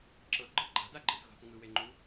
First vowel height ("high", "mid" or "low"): mid